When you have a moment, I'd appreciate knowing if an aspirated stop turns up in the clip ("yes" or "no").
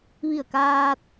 no